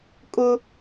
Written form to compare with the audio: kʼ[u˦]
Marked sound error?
yes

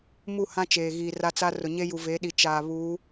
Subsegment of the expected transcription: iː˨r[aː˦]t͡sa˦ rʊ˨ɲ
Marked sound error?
yes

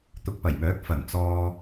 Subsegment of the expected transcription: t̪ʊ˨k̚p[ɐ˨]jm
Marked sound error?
yes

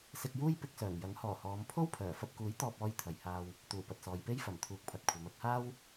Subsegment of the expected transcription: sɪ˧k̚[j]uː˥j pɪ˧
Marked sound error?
no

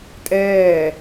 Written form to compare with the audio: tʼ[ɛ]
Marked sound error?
yes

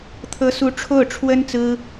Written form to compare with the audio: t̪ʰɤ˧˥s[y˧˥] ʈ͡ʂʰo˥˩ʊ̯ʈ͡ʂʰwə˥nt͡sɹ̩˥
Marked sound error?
yes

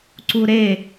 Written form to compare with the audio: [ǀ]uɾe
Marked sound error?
no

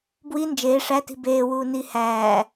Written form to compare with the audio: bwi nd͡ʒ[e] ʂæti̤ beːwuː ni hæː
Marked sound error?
yes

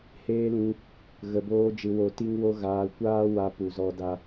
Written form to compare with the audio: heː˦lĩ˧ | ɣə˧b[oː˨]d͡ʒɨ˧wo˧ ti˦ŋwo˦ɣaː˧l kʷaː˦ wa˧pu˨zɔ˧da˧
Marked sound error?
yes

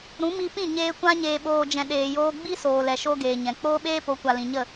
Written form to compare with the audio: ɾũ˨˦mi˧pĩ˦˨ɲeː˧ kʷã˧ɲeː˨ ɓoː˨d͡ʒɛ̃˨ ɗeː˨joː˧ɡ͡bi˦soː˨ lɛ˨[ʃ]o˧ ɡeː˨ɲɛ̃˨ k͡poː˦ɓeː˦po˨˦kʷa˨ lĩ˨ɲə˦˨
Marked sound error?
no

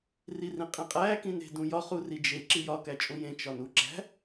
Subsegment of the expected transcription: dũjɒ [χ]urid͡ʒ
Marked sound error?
no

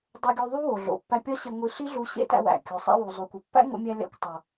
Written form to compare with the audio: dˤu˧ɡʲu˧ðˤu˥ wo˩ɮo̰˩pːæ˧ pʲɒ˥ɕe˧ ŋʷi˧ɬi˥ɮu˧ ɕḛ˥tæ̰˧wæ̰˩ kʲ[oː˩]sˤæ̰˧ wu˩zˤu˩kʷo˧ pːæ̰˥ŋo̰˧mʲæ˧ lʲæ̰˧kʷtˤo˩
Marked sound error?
yes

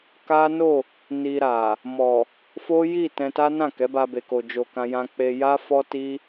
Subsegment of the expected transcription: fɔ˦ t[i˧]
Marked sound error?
yes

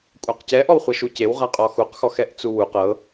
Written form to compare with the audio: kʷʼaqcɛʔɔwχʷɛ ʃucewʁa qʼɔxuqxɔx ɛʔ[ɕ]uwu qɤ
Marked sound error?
yes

